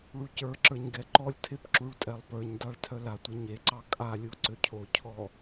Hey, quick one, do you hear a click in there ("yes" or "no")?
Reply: yes